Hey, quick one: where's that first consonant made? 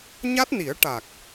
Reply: palate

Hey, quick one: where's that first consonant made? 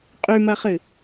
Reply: uvula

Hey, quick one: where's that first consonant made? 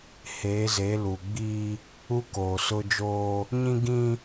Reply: throat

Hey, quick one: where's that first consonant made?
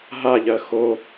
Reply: throat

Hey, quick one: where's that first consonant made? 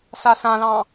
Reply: tongue tip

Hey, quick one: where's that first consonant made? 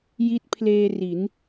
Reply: palate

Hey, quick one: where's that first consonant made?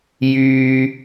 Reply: palate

